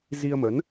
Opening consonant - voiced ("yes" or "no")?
yes